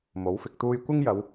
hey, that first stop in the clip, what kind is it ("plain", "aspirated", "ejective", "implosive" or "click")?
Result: plain